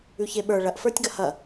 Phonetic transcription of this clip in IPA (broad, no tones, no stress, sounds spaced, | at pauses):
ʉ ç e ɓ ə˞ ɭ ɐ ʔ f ə˞ tʲ ɡ ɐ h ɐ